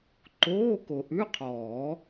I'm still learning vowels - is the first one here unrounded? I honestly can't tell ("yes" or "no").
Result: no